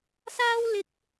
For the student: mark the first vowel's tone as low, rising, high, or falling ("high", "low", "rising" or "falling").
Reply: high